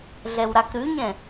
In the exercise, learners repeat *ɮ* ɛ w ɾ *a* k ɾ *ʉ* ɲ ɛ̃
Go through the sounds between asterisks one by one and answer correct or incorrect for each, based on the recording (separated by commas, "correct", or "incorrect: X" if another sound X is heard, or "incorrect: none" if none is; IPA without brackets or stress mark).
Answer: correct, correct, correct